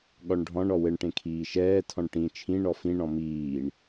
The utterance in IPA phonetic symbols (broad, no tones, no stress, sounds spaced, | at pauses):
ɠ ɔ ɳ ɖʱ ɔ̃ ɳ ɔ w ɘ ɳ ʈ ẽ kʰ iː ʃ ɛː tʰ ɔ̃ ɳ ʈ ĩ t͡ʃʰ ĩ ɳ ɔ f ĩ ɳ ɔ̃ m iː ɳ